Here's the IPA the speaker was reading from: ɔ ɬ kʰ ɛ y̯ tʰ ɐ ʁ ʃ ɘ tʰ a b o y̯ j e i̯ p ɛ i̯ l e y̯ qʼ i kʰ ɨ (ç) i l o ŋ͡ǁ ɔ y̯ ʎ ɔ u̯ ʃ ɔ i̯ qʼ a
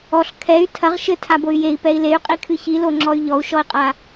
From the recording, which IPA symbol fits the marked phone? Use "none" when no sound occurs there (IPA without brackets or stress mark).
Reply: ç